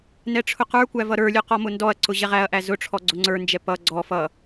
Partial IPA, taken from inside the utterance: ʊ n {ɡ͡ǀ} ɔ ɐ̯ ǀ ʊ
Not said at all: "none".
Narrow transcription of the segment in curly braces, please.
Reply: d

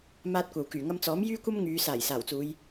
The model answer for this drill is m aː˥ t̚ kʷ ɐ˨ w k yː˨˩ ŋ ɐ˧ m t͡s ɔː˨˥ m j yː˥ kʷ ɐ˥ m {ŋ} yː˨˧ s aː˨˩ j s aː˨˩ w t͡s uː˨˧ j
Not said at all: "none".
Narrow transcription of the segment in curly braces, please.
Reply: ŋ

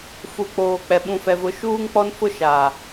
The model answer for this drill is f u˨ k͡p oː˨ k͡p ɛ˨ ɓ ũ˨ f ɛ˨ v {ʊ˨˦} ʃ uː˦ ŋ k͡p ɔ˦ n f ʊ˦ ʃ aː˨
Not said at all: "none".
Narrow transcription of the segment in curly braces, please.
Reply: ʊ˨˦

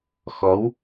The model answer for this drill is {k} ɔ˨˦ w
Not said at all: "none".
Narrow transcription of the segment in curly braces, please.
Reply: x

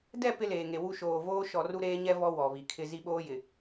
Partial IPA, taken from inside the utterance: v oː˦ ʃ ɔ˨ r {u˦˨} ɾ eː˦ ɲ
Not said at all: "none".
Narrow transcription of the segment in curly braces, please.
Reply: u˦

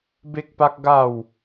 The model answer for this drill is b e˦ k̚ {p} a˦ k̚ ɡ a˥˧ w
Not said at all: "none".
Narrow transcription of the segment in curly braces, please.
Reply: p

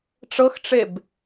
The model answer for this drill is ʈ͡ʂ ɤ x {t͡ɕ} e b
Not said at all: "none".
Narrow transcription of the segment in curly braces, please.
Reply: ʈ͡ʂ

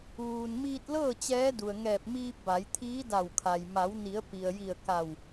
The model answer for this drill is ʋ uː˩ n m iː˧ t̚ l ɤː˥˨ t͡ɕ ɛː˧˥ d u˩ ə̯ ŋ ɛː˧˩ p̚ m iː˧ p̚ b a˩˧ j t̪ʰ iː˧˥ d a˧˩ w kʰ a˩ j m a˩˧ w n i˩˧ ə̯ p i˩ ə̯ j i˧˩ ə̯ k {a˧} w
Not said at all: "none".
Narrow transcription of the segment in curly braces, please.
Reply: a˧˩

